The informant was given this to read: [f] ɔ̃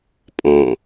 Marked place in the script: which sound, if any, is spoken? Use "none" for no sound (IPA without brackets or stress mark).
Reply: pʼ